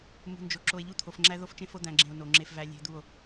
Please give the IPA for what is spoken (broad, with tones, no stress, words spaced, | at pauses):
mṳ˨nd͡ʒo˨ ǁo˨e̯ʎu˦t̪ʰo˨fŋ͡ǁæ˦ ðo˦ft͡ʃẽ˦fo˦ d̪æ̃˨ɡ͡ǁẽ˨o̯ no˨ŋ͡ǁe˦fvæ˦ lʲe̤˦d̪u˦˨o̯